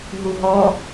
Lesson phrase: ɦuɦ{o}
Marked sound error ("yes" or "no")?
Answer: yes